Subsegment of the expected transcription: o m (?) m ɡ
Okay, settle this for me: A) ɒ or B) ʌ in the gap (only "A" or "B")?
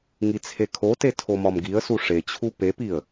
A